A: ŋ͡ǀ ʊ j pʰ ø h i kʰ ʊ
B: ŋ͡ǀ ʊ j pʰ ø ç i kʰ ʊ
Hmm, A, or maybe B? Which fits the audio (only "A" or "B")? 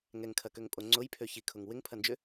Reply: B